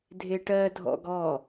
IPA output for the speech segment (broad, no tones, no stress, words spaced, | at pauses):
dʱeʈɜ dʱɔ̰ɡɔ